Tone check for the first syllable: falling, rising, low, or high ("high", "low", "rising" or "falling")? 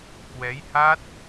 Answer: rising